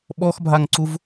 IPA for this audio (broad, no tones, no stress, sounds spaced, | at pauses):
ɓ ɔ x bʱ a ŋ ǀ u v